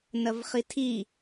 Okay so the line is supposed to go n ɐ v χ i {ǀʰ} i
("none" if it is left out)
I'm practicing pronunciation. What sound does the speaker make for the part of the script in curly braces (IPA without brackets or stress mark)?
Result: tʰ